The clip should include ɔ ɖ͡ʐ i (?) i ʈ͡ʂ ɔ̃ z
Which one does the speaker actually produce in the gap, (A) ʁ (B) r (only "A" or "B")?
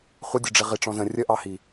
A